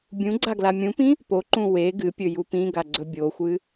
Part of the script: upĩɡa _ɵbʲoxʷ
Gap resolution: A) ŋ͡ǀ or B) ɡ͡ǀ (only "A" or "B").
B